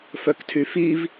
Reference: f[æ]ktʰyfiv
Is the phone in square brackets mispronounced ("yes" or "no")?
yes